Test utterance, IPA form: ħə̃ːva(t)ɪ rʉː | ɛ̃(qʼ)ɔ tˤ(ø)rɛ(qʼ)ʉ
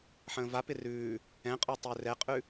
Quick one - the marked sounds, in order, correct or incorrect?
incorrect, correct, correct, correct

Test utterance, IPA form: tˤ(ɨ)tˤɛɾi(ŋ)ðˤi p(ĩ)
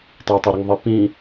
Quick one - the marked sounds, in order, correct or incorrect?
correct, correct, correct

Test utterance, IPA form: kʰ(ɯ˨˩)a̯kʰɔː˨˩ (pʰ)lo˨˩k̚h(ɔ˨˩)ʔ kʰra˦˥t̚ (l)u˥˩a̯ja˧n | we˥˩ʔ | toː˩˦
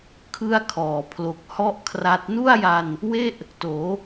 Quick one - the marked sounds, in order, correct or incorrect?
incorrect, correct, incorrect, incorrect

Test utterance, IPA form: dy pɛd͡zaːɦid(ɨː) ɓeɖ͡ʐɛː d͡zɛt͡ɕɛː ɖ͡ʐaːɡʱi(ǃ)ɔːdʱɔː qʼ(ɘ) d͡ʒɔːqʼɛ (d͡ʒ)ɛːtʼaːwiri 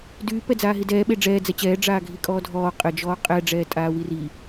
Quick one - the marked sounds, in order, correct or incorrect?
incorrect, incorrect, correct, incorrect

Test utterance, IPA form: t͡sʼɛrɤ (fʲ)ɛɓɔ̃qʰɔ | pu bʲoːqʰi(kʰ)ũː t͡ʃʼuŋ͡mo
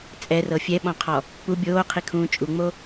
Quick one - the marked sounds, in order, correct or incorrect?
correct, correct

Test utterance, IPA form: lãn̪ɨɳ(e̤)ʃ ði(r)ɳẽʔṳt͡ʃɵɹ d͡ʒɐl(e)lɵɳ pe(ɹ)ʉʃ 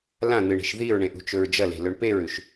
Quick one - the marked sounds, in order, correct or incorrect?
correct, incorrect, incorrect, correct

